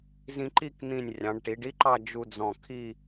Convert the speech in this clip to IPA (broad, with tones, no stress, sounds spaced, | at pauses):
z ĩ˧ ǃ i˥˧ k n̪ ĩ˧˩ nʲ rʲ ɑ̃˩˧ ɖ ʈ i˩˧ ɖ i˥ ǃ ɑ˥˧ d͡ʒ u˧ d͡z ɔ̃˧˩ kʰ i˥˧